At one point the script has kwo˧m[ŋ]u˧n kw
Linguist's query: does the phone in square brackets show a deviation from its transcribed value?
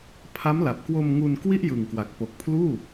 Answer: no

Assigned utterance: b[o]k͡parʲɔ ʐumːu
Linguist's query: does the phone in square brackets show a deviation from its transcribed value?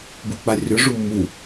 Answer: yes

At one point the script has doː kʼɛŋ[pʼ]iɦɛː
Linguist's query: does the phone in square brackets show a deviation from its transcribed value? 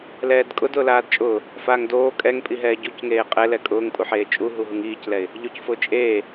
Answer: no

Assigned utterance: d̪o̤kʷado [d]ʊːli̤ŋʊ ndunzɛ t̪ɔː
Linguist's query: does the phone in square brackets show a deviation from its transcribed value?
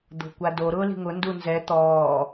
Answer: yes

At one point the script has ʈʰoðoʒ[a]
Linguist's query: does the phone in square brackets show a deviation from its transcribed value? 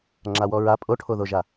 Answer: no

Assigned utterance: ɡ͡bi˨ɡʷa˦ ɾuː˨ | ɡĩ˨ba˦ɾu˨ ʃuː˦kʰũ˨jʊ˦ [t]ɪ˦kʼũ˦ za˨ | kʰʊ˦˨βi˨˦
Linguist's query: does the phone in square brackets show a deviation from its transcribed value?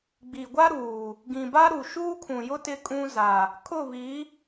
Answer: no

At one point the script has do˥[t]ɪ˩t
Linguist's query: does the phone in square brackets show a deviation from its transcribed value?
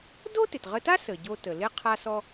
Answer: no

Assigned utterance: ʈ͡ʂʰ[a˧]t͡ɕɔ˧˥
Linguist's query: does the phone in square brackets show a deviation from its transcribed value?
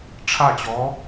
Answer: yes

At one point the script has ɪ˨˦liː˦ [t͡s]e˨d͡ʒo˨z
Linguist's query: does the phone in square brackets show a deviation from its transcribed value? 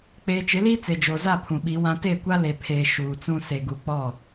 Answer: no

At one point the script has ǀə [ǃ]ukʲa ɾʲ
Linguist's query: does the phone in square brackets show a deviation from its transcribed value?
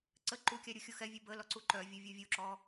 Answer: no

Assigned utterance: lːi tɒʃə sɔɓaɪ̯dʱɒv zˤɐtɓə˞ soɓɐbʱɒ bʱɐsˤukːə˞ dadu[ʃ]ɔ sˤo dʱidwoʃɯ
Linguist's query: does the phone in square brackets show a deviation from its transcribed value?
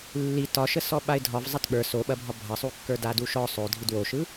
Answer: no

